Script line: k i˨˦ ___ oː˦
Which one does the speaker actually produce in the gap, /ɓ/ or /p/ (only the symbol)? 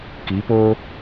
p